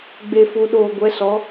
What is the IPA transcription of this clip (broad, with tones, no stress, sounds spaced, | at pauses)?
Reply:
ɡ͡b e˨ f u˨ ɗ oː˨ ɡʷ ɛ˨˦ s ɔ˨˦